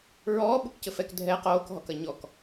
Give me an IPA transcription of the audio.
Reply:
ɹ ɔː ɓ u k c ɘ f ɛ k dʱ ɛ q oː k ɦ ɔ k ɐ ɲ ɔ k

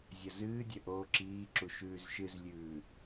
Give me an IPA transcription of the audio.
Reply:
zʲ ɐ z ɨː dʲ ɐ ʔ oː ǁ iː ǁ u ʃ ʉː z ʃ ɨ z lʲ ʉː

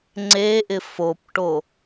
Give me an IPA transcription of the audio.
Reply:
ŋ͡ǀ e ʔ ɪ f o p ʈ o

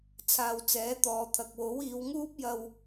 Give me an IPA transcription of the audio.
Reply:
t͡sʰ aː˨ w t͡s ɛː˨˥ t̪ ɔː˨ t̪ʰ ɐ˨ k̚ w o˨˥ w iː˨˧ w ŋ uː˥ p̚ j ɐ˧ w

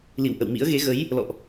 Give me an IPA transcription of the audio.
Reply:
l ḭ˧˨ w ʔ ə̰˧˨ w m ḭ˧˥ ə̯ ɣ e˨˦ ɣ ə˨˦ j | l ɔ̰˧˨ ʔ

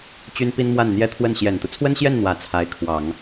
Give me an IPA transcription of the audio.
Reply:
t͡ɕ y˥ n p i˥ n m w a˥˩ n n̪ j ɛ˥ t̪ʰ w ə˥˩ n ɕ j ɛ˨˩ n t̪ u˦ t͡sʰ w ə˥ n ɕ j ɛ˥˩ n n̪ w ä˧˥ t͡sʰ a˧˥ ɪ̯ kʰ w ɑ˨˩˦ ŋ

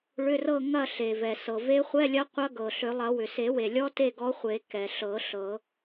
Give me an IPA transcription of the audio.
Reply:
ɭ ʏ˧˥˧ r ɤ˥˨ ŋ ɐ˥˨ ɬ e˩ v ɛ˩ s ɤ˩ v e˧˥ χʷ ɛ˧˥˧ lʲ ɐ˧˥ qʷ ɐ˧˥ ɡ ɤ˩ ɬ ʏ˨˩˦ lˠ ɐ˨˩˦ w ʏ˩ s e˨˩˦ w e˩ lʲ ɔ˧˥ t e˥˨ ɡ ɔ˧˥ χʷ e˨˩˦ k ɛ˩ ɬ ɤ˨˩˦ ɬ ɤ˨˩˦

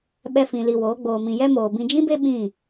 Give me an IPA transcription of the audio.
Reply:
ɓ ɛ˧ f ĩ˧ l i˧ w oː˨˦ ɡ͡b oː˨ m ĩ˨ j ɛ˧ m oː˨ b ĩ˧ d͡ʒ ĩ˦ b e˦ ɓ ĩ˦˨

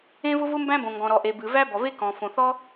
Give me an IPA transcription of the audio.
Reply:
ẽ˥ v ʊ˥ v ʊ˥ m b æ̃˥ b õ˩ ŋ ɡ ɔ̃˩ ɾ ɔ˩ ʔ e˩ b ɨ˩ v æ˥ b ɔ˩ v e˥ k ɔ̃˩ f õ˩ θ ɔ˥

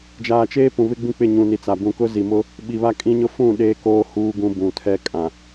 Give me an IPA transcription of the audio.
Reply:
d͡ʒ aː˨ t͡ʃ eː˦ p ũ˨ β ɪ˦ ɡ͡b ĩ˦ k͡p ɪ˦˨ ɲ ũ˨ n i˨ t͡s a˨ b ũ˨ k ʊ˦ z i˨ m ʊ˦ | ɓ i˨ β a˦ kʼ ĩ˦ ɲ ʊ˦ f ũ˦˨ ɗ eː˦ k oː˦ h uː˦ ɡ ũ˦ b ũ˨ tʰ ɛ˦ kʼ ã˨

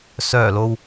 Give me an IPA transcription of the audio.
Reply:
s œː˨˩ l o˨ w

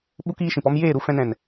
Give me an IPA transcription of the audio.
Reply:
ɓ u˦ k iː˦ ʃ ĩ˨ p ɔ˦ m j eː˦˨ ɾ u˧ f ɛ̃˧ n ɛ̃˨ n

